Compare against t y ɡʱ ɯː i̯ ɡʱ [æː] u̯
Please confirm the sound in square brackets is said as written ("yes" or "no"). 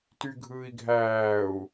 yes